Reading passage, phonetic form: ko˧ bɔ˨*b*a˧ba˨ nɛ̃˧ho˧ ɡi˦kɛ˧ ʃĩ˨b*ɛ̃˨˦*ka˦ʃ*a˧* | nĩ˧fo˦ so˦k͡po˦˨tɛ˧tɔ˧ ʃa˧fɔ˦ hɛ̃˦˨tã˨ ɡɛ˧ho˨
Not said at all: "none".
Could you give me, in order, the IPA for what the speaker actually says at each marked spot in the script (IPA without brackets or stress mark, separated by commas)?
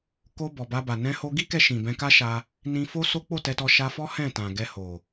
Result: b, ɛ̃˧, a˧